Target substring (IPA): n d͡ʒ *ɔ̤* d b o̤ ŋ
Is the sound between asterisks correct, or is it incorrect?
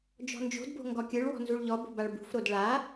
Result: incorrect